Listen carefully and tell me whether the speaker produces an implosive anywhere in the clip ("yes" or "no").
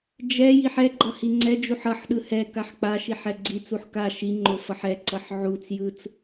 yes